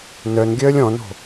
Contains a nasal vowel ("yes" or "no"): yes